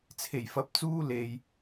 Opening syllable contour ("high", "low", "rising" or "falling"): low